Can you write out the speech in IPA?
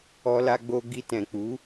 ɔ˦la˦ɡ͡bo˦ ɡi˧tɛ̃˨k͡pu˨˦

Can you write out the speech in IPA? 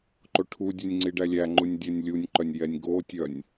ǃoʈʰudʲɛnʲ ŋ͡ǀiɖælʲæŋ͡ǃunʲ dʲɛnʲlʲunʲǃœnʲ jɛnʲɡotʲœnʲ

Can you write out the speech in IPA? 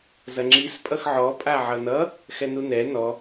zɐŋ͡ǁis pʼʌxʕɔ pʼaʕʌnʌ | xɛnunɛ nɔ

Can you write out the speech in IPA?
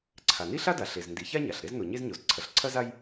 ǀʰa˩ni˥ɬa˥da˩ ɬe˩zndi˩ ça˥ɲa˩ɬ ɾe˥zno˩ɲe˥zɲo˩z ǀʰɐ˩ɬǀʰɐ˥za˥j

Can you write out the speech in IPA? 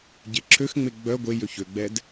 ɟeǁʰøxŋ͡me ɡ͡bœ ɡʷe jøçøɡ͡bɛd

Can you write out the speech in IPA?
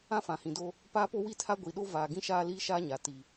ã˦fã˨hĩ˨do˦ | paː˦po˦wi˦tʰa˦ ɡʷi˨ɗo˦ vaː˨ɡĩ˦ ʃaː˦liː˦ʃaː˦ɲa˨ ti˨

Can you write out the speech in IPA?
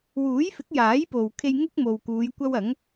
wuː˨˥jfɪ˨˥k̚jaː˨˥jpo˨w kʰe˧j ŋʊ˥k̚mo˨w kuː˨˧j kʷɐ˥w ɐ˨˥ŋ

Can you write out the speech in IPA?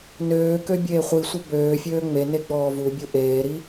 nøːkø bʲeːχʷisʷœ bøːfʲøː ŋ͡mene ɡ͡bɔːvubʲu ʔeːɾi

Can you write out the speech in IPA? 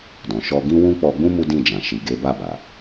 dɔ̃˨ʃɔ˧ ɡĩ˦wũ˦ k͡pɔ˧ɡ͡bũ˦ mu˦dĩ˦˨d͡ʒã˨ ʃi˨ɡe˨˦ba˦˨ba˨

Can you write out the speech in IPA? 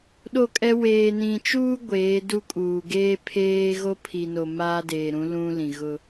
ɗo˦˨kʼɛ˦ weː˨nĩ˨t͡ʃuː˦ ɡʷeː˨˦du˦kʼuː˨ ɡeː˦ pʰeː˦ ɣo˦pʰi˨no˨ maː˦deː˨ɾũ˨˦ lũ˦lĩ˨ɣʊ˦

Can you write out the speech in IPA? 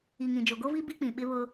i˨ŋĩ˨d͡ʒo˨ ɡo˦vi˦ bi˦k͡pĩ˨ ɓɪ˦βʊ˦

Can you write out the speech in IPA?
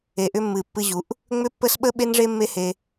e˨ʔʏ˧mːɨ˨ pːɨ˧ʑu˨˦ʔ | ŋ͡mʏ˦pːə˦s ɓə˦ɓe˦nʐe˦ mːe˦he˧

